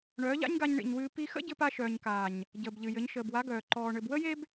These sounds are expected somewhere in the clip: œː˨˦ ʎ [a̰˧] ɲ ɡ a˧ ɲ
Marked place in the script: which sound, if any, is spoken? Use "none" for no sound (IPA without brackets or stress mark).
a̰˦